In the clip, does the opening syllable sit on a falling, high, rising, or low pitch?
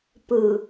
low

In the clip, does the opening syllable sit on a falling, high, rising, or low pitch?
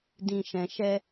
low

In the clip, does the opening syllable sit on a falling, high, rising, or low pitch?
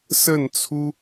falling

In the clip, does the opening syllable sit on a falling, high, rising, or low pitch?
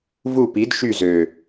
falling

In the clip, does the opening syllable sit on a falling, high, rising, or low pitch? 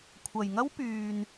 low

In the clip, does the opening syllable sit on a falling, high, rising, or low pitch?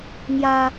high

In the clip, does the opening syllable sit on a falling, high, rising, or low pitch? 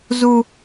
high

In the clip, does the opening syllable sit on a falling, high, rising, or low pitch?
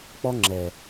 high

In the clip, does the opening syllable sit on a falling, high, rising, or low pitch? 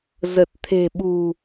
low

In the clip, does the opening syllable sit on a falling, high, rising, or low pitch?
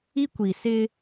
high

